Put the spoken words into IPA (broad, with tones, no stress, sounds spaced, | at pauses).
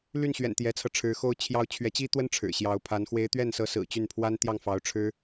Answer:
l y˥˩ n ɕ ɥ ɛ̰˨˩ n t̪ j ɛ˧˥ t͡sʰ ɤ˧ ʈ͡ʂʰ ɻ̩˧˥ x o˥ ʊ̯ t͡ɕʰ j ɑ˥ ʊ̯ t͡ɕʰ ɥ ɛ˧˥ t͡ɕ i˥ t̪ w ə˥ n ʈ͡ʂʰ ɻ̩˨˩ ɕ j ɑ˧˥ ʊ̯ pʰ a˧˥ n x w e˧˥ ɪ̯ t̪ ɥ ɛ˥˩ n s ɤ˧˥ s ɹ̩˨˩ t͡ɕ y˥˩ n pʰ w a˥ n t̪ j ɑ˥˩ ŋ f ɑ˧˥ ʊ̯ ʈ͡ʂʰ ɻ̩˥